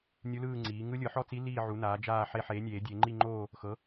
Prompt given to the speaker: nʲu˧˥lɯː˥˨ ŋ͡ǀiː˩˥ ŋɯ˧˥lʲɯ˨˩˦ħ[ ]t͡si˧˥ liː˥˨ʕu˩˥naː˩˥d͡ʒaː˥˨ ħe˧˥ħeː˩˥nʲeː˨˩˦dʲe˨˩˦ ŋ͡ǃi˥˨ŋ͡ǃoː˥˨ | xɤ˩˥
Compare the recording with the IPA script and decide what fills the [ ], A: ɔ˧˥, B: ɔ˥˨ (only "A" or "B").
B